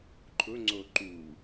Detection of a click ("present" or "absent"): present